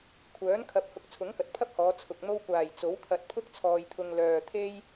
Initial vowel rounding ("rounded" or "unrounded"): rounded